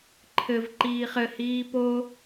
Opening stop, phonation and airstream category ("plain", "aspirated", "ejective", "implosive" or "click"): click